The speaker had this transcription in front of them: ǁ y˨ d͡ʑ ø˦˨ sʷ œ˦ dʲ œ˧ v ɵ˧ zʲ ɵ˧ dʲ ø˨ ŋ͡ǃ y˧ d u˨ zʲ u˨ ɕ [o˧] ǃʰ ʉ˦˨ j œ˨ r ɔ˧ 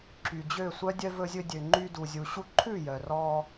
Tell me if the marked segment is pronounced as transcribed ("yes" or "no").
no